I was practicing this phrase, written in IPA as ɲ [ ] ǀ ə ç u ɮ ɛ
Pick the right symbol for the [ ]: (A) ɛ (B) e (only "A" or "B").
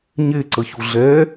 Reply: B